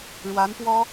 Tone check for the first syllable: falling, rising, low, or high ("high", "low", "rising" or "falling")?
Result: rising